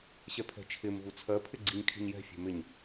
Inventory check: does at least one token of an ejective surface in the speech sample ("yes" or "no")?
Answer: no